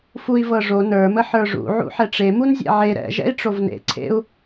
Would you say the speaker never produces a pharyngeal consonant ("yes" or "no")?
no